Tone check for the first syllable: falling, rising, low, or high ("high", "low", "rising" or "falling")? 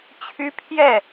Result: high